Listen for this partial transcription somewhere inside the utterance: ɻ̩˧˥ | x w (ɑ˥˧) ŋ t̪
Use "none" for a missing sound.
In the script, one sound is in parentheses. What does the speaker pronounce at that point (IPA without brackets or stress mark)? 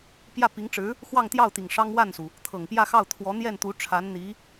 ɑ˥˧